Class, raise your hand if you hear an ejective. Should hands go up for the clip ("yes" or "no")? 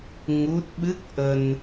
no